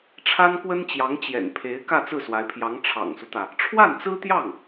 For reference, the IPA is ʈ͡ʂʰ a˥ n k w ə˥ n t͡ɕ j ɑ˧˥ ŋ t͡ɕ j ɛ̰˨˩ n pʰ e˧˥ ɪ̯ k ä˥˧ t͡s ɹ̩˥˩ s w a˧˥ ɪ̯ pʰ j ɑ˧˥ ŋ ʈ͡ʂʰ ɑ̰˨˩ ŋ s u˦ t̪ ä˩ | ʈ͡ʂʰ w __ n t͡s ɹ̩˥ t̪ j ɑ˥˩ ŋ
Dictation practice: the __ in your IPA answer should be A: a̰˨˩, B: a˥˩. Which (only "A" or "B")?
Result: B